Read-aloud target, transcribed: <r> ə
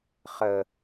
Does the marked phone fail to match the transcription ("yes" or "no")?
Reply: yes